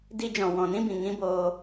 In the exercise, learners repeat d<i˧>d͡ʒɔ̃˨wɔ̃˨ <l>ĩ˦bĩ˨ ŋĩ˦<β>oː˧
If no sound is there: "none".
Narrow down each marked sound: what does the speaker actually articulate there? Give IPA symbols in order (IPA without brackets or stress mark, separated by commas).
i˧, n, b